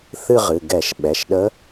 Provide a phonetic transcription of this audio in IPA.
θ ɨ˥˧ ʁ ɨ˩˧˩ ɡ ɛ˧˩˧ ʃ ɓ ɛ˩˧˩ ʃ ɗ ə˧˥

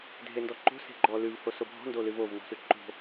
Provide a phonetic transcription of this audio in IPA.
dʱ e n d ɔ ǃ o̤ s e̤ ɡ͡ǃ ɔ l ʉ v h o s o bʱ ɔ̤ n d o l ɨ v o v n ɔ̤ s ʉ ǃ o̤

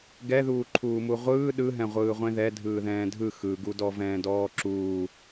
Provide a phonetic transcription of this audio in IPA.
ɡ ɛ ð uː ǃʰ uː m u ʁʷ ɯː ɗ ɯ ɦ ɛ̃ ʁʷ ɯː ʁʷ ẽ ð ɛ dʱ ɯː ð ɛ̃ː dʱ ɯ x ɯ ɡ u d ɔ v ɛ̃ː d ɔː ǁ uː

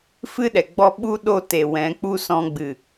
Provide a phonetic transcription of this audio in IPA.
f ɨ˦ ɗ ɛ˨ ɡ͡b ɔ˦ ɓ u˦ ɗ o˦˨ t e˨ w ɛ̃˨˦ k͡p u˦ s ɔ̃˧ ɡ͡b ɨ˨

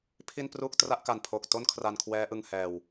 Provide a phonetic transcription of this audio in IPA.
pʰ i˥˩ n p r uː˥˩ k̚ t r a˥˩ ʔ k a˨˩ n pʰ o˨˩ k̚ t o˥˩ n kʰ r a˧ n kʰ w ɛː˦˥ ʔ ɯ˧ ŋ h ɛː˨˩ w

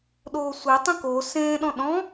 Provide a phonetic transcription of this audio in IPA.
ɗ oː sʷ e tˤ ĩ k o s ẽː ɗ ɔ̃ ɗ ɔ̃

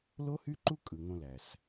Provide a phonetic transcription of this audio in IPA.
l o˦ h y˦ ǃ u˦ kʼ ɯ˨ ŋ õ˦ l æ˨ s

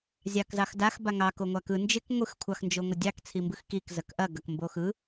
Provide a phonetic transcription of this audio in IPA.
zʲ ɑ k z ɑ x d a x b a ŋ ɑ k o ŋʷ a k ɯ n d͡ʒ ɪ k ŋʷ ɯ x kʷʰ ɑ x n d͡ʒ o ŋʷ ɪ dʲ ɑ k t͡sʰ i m b ɯ x k i k z ɐ k ʔ ɐ ɡ ɐ k m b o x ɯ

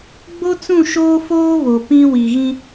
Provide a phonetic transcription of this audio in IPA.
ɡ͡b o˦ t͡s ũ˦˨ ʃ oː˦ f oː˦ β o˨ p ĩ˦ w i˨ ɣ ĩ˦

